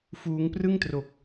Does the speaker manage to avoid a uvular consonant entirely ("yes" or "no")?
yes